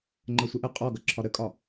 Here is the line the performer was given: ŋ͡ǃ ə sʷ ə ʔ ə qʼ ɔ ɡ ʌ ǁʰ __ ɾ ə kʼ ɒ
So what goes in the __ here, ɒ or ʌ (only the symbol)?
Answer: ɒ